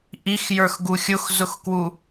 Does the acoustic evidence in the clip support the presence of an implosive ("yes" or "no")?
no